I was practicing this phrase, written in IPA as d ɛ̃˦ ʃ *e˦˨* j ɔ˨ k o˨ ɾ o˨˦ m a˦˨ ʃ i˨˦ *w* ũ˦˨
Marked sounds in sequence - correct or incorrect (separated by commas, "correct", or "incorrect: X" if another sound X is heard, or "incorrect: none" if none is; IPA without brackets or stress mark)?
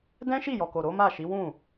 incorrect: i˦˨, correct